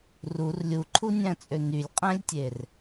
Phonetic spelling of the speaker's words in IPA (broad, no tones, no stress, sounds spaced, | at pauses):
r u r lʲ u ǃʰ u nʲ æ̃ t͡sʼ ø n y lʲ qʼ æ̃ lʲ tʲ e r